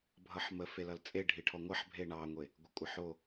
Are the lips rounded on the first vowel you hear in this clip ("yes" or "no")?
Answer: no